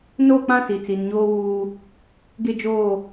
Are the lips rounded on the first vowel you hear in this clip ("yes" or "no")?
yes